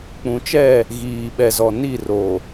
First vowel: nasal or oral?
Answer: nasal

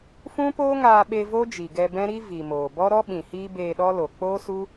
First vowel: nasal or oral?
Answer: nasal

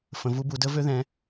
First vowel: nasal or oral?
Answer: nasal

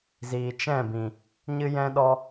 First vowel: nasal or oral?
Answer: oral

